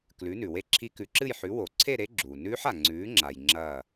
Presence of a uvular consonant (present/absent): absent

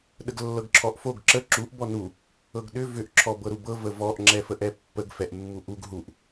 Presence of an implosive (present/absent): present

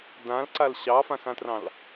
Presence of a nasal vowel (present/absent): present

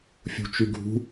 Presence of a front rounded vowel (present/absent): present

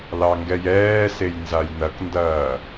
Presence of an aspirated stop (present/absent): absent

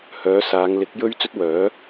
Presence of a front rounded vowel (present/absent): present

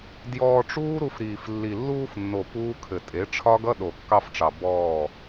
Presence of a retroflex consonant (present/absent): present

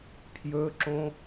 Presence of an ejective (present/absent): absent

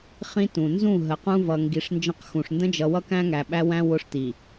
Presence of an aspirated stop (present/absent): absent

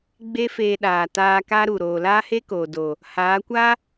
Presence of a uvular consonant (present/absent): absent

